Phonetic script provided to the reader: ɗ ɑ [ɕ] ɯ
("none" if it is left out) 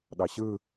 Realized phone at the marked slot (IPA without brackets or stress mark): ɕ